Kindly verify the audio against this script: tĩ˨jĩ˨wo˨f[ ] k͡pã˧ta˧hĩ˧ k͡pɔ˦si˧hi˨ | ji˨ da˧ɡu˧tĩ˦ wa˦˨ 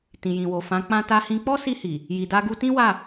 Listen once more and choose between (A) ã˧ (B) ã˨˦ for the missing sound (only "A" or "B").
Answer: B